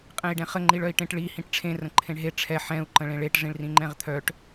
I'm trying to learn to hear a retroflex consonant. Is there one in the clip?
yes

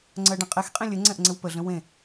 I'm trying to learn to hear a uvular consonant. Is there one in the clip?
yes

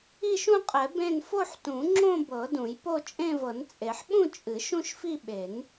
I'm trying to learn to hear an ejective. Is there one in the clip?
yes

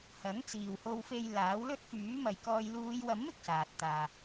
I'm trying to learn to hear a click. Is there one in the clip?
no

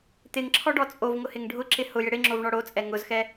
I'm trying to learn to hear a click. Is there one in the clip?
yes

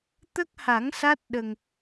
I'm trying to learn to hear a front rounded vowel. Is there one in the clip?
no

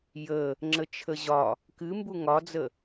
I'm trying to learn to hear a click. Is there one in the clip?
yes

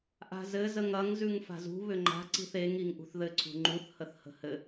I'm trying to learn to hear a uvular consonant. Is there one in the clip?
no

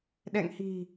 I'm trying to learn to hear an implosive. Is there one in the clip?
yes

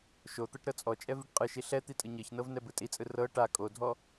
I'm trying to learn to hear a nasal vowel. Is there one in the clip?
no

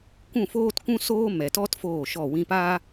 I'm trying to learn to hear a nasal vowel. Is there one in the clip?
yes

